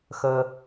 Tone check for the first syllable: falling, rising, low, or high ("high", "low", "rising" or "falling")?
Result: high